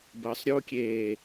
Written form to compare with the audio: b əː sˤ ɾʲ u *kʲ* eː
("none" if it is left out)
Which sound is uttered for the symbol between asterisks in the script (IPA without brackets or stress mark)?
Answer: kʲ